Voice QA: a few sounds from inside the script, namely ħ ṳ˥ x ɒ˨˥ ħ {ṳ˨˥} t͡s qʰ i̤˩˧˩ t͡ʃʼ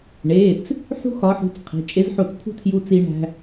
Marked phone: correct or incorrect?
correct